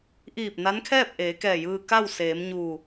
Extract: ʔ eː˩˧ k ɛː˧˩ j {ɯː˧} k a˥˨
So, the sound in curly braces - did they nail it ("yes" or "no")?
yes